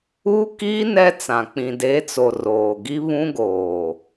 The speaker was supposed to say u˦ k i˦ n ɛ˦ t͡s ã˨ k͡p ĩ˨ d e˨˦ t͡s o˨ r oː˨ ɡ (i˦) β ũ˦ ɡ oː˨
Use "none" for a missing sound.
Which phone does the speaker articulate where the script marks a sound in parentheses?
i˦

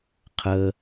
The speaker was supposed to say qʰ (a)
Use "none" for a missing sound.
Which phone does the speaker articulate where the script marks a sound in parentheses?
ə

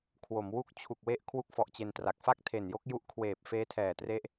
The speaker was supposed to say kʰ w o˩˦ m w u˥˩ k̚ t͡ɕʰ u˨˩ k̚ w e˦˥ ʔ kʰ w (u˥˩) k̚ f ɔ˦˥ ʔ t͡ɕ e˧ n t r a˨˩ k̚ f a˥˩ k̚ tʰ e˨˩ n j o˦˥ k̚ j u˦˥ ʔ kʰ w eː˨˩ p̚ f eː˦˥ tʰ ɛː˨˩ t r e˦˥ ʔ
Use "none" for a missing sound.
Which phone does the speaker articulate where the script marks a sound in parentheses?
u˥˩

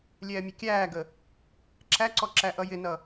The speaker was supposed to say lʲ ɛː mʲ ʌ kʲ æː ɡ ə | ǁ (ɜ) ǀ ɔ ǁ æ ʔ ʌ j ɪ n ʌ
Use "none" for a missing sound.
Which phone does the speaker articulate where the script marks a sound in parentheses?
æ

